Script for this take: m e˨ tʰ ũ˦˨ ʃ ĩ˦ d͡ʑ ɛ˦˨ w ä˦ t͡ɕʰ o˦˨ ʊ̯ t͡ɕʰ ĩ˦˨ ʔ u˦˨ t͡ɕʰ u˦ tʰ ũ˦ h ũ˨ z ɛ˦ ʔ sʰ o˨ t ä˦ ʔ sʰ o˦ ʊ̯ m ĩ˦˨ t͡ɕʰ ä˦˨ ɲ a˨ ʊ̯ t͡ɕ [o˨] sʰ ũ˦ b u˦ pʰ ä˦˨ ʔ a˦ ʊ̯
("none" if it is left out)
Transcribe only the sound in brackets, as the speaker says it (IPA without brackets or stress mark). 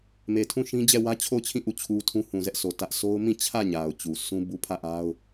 u˨